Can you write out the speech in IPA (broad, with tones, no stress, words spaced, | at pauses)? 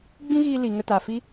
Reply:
ɡ͡bĩ˦ɣiː˧ li˨ ŋə˧taː˨fi˦